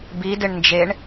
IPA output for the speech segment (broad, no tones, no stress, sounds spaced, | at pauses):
b i d ɪ ɳ n d͡ʒ e ɳ